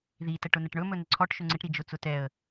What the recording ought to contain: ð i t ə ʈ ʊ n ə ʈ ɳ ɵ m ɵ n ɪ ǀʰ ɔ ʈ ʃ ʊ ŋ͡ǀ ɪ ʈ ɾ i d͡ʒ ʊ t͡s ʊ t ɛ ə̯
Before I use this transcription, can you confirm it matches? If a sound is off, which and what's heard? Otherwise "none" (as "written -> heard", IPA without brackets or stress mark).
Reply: none